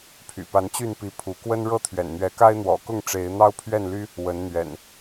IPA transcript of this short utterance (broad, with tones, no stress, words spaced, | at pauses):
pʰy̰˨˩pa˨˦nt͡ɕy˥˨npi˨˦ pʰu˨˦ kwə˦nɻɤ˦t̪ʰɥɛ̰˨˩n n̪ɥɛ˨˦ka˦ɪ̯n̪wɔ̰˨˩kʊ˥˨ŋ ʈ͡ʂe˨˦ɪ̯n̪ɑ˦ʊ̯pʰɥɛ˥˨nly˦ | wə˨˦nn̪ɥɛ̰˨˩n